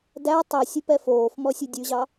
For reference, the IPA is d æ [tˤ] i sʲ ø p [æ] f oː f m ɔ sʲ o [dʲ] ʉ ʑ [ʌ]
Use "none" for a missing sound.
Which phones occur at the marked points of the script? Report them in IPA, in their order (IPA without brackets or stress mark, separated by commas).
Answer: tˤ, ɛ, dʲ, ɑ